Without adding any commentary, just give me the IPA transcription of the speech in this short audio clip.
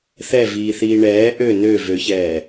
θ ɛ v iː θ iː ɳ ɛː ʔ ø n ø v ø ç ɛː

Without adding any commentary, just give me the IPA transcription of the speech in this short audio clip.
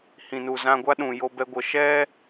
h ĩ˨ n u˨ z ã˧ ɡʷ a˦ ɗ ũ˨ j o˧ b ɛ˧ ɡʷ ə˨ ʃ ɛ˦

